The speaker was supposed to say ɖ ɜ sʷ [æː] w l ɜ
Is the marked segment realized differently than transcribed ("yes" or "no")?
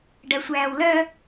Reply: no